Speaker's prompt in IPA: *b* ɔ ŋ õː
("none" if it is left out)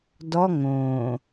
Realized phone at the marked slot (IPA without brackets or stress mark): d